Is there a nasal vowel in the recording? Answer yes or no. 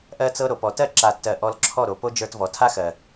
no